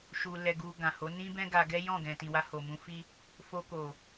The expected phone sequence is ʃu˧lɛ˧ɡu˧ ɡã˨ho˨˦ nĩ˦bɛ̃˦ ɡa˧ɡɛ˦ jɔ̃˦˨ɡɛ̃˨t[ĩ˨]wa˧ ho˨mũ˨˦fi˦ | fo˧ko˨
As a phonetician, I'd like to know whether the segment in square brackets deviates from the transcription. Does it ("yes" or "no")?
no